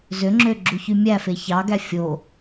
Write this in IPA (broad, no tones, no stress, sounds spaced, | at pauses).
z ø ŋ͡ǁ ø ɡ͡ǁ u ç y mʲ æ f e ç ɑ ɡ æ fʲ o